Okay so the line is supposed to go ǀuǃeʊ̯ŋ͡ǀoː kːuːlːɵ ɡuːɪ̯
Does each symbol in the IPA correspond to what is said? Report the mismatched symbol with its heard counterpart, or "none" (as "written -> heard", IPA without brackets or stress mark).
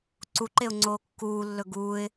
none